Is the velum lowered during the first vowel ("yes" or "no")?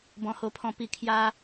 yes